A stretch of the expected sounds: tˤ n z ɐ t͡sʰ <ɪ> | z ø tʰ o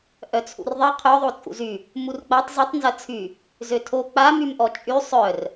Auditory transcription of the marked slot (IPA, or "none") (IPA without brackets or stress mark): y